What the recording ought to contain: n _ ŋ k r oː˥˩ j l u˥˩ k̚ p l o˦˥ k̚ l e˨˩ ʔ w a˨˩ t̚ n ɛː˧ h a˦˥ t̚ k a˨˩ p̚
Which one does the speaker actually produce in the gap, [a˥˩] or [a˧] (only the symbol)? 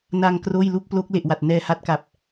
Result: a˧